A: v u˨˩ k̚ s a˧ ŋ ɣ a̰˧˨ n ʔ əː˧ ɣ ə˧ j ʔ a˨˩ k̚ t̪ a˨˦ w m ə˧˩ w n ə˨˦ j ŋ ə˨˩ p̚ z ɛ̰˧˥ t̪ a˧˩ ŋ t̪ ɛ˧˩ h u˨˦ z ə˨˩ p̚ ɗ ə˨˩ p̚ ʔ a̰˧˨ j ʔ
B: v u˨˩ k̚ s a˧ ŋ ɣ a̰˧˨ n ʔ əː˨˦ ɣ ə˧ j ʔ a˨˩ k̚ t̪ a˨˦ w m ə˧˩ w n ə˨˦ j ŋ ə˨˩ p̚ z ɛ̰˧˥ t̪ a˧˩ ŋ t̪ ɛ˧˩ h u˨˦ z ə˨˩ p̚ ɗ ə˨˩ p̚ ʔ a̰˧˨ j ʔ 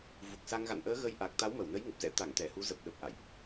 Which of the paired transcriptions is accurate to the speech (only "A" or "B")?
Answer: B